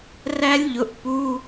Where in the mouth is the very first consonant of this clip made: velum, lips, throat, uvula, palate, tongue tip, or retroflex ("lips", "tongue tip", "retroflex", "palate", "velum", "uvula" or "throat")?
tongue tip